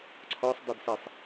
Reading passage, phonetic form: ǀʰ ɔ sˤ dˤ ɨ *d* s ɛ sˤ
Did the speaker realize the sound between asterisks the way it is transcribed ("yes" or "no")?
yes